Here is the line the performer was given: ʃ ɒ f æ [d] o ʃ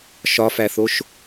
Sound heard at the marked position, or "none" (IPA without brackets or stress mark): θ